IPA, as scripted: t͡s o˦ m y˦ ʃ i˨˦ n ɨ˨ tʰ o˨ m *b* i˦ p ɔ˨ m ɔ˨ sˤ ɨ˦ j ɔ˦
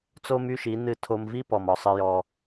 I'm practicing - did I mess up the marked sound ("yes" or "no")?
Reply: yes